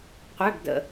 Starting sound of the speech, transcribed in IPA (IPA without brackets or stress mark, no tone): qʷ